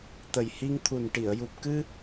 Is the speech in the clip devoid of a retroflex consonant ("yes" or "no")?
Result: no